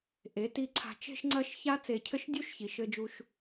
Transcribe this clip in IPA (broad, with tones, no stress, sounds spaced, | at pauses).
ʔ e˩˧ t i˧ ǀʰ a̤˧ t͡ʃ e̤˧ ʃ ŋ͡ǀ ɐ˧ ʃ ç a˥ t͡s e˧˩ cʰ ɘ˥ ʃ dʲ u˥ ʃ ç i˩˧ ʃ ɘ˥ d͡ʒ u˥ ʃ